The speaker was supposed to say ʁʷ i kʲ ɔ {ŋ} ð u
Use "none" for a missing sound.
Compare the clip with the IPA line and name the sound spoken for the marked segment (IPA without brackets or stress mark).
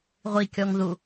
ŋ